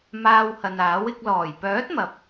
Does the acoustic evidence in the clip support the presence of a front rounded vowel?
yes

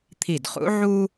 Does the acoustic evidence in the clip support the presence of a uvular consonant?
yes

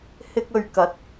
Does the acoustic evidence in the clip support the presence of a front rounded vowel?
no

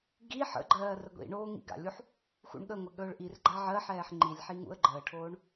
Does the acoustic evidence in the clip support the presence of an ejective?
no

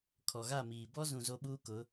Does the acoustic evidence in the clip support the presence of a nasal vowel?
yes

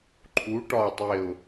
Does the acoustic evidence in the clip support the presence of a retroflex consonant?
yes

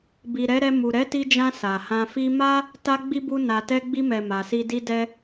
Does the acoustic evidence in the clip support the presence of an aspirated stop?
no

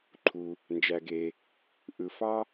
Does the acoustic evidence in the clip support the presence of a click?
yes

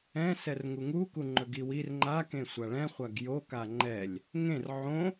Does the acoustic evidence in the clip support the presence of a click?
yes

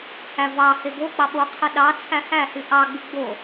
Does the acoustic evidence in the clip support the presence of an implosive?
yes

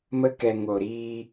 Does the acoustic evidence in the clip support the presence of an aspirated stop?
no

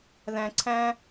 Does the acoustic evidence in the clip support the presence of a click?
yes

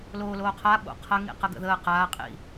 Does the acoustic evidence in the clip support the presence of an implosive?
yes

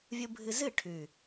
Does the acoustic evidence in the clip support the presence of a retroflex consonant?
yes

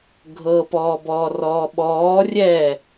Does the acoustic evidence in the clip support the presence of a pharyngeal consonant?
no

